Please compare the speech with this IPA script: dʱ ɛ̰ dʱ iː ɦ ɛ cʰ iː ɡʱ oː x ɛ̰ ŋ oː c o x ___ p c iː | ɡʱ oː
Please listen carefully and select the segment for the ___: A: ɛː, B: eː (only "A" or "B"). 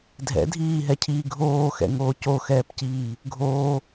A